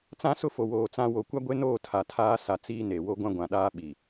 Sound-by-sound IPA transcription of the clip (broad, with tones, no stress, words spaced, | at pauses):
t͡sã˦sʊ˦ fo˨woː˨ t͡sã˦ wo˨kʷa˦ɡʷe˦noː˦˨ tʰa˨tʰaː˦ sa˨ t͡siː˦ne˨ wo˦ɡʷã˦ɡʷã˨ɗaː˦ ɓi˨